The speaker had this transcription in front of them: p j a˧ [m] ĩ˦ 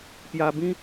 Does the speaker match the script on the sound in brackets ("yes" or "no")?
no